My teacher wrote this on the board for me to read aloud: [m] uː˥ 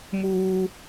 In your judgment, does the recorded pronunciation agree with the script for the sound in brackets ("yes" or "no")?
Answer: yes